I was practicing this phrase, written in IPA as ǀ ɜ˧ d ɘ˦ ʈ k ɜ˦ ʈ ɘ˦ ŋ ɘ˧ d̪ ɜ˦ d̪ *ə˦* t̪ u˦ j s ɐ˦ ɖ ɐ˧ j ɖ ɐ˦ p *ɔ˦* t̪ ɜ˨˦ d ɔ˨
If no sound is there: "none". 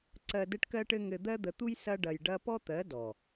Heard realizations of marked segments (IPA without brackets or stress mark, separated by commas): ə˧, ɔ˦